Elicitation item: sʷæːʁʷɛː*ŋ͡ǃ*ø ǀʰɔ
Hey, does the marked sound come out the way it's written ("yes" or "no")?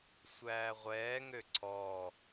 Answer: no